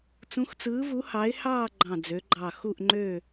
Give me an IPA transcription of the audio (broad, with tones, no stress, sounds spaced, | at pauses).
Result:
t͡s ũ˨˥ x t͡s ɯː˨˥ v u˨˥ h ɑ˨˥ ɪ̯ h ɑː˦˨ ɡ͡ǃ ɑ̃˦˨ d͡z ø˨˥ ɡ͡ǃ ɑ˦˨ x u˦˨ ʔ ŋ͡ǃ ø˦˨